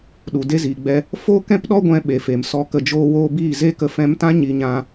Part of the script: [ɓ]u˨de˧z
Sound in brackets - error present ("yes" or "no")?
yes